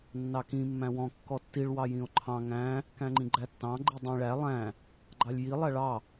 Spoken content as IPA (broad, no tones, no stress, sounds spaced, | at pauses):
nː ɑ k ĩ mː æ̃ w ɔ̃ kː ɔ tː i ɭ w ɑ j ĩ o̯ ǃʰ ɑ̃ ŋ æ̃ | k æ̃ ŋ͡ǃ ĩ ɡ͡ǃ æ tː ɑ̃ ɡ͡ǃ i dˤ ĩ ɭ æ lˠ æ̃ | ɡ͡ǃ ɑ lʲ j i lˠ æ ɭ ɑ